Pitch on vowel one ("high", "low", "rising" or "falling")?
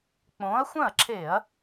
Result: rising